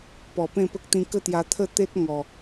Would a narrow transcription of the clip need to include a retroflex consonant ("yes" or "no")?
no